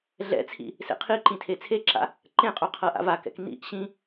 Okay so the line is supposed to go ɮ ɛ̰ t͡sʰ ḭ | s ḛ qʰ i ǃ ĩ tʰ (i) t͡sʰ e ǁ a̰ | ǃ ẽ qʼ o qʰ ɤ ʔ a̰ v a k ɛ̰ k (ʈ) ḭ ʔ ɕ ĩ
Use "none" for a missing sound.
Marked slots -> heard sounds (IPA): e, n

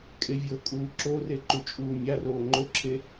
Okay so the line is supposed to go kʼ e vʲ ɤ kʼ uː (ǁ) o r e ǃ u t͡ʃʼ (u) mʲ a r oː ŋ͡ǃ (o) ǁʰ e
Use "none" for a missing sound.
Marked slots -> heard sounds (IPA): ǁ, uː, o

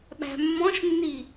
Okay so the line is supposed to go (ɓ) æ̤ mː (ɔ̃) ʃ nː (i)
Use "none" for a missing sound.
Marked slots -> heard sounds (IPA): ɓ, ɔ̃, i

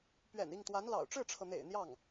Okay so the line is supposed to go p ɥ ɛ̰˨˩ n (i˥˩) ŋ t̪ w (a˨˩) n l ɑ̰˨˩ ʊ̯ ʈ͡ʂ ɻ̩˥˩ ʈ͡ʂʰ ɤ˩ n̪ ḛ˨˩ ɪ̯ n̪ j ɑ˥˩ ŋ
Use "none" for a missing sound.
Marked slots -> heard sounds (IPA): i˥˩, a˧˥

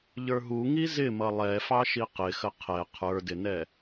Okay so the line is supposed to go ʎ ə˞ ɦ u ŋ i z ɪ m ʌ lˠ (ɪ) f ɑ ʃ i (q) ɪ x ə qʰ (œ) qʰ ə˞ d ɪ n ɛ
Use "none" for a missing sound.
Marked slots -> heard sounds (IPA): ɛ, q, ɛ

